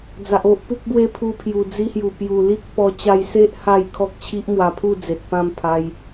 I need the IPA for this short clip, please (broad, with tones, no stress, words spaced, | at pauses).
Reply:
d͡za˨ʔo˦ʔ pu˦k̚bwe˦pʰu˧pʰju˨˩ d͡zi˧hju˨˩pju˨˩ li˦k̚ pɔ˧ t͡ɕa˧jse˦ʔ ha˥˧jkʰɔ˦k̚ t͡ɕʰi˦ʔmwa˧pʰu˥˧ d͡ze˨t̚ pã˥˧mpʰa˧j